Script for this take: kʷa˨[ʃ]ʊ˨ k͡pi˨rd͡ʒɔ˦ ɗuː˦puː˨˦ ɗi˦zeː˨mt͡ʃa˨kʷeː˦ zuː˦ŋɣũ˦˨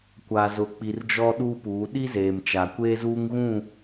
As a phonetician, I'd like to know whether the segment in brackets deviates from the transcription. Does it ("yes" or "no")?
yes